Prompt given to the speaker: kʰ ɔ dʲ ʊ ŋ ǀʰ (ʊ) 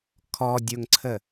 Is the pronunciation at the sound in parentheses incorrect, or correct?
incorrect: ə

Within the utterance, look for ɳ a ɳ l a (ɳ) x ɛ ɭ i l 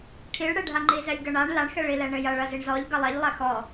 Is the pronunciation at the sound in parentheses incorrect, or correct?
correct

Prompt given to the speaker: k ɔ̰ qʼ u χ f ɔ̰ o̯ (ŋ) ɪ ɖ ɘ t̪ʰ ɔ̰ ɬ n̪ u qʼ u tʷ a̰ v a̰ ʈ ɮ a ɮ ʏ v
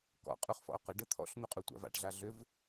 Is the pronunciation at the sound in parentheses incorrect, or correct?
incorrect: q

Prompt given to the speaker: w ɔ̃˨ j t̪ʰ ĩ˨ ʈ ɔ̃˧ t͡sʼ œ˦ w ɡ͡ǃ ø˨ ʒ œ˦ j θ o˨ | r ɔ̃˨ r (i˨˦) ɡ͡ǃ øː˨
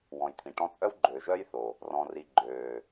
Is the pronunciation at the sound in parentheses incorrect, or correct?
incorrect: i˨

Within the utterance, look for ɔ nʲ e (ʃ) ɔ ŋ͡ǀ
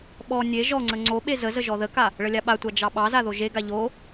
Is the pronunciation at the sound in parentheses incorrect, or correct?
incorrect: ʒ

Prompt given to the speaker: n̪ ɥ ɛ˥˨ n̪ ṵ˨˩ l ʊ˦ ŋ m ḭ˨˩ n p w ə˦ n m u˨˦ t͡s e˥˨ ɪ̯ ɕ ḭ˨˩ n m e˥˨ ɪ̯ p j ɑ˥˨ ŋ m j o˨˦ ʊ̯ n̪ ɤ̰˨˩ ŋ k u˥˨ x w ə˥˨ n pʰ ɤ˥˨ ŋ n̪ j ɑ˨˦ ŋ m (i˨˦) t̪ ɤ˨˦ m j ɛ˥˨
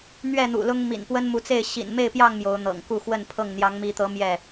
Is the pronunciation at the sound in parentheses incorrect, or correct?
correct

